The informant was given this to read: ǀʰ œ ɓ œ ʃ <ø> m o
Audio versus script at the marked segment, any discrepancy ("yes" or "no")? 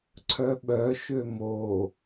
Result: no